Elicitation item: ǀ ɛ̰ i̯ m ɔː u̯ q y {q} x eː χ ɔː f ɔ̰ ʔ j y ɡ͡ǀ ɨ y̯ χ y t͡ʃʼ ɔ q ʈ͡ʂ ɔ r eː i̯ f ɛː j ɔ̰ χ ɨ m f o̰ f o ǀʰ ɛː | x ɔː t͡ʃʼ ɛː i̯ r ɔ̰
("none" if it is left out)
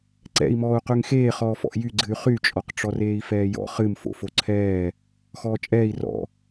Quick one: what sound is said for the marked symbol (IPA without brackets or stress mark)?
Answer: ŋ